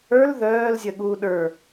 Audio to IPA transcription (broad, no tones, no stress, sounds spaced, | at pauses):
ə˞ l ð œː l zʲ ə ɠ u ɗ ə˞